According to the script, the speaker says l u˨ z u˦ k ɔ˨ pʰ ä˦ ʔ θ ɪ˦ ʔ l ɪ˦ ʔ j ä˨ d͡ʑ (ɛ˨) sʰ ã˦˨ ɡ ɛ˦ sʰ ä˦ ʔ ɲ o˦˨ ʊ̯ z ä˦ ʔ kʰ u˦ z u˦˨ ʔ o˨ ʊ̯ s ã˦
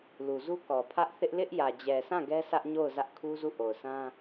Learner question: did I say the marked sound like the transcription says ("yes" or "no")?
yes